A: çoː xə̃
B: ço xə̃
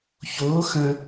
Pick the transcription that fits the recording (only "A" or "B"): A